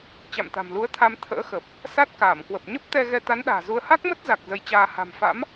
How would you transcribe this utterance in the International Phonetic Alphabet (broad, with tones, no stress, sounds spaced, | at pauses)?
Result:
t͡ɕ a̰˧˨ m t̪ a̤˨˩ m l u˨˦ ə̯ t̪ʰ a˧ m t̪ʰ ə̰ː˧˥ x ə˨˩ p̚ | s a˦˥ t̚ k aː˧˩ m k w ə˨˩ p̚ ɲ ə˦˥ p̚ t̪ ɛ˧ ɣ ɛ˧ t̪ a˨˦ n ɗ a̤ː˨˩ z u˧ ə̯ h a˦˥ k̚ m ə˦˥ t̚ z a˨˩ k̚ z ə˧ j t͡ɕ aː˧ h a̤˨˩ m f a̰˧˥ m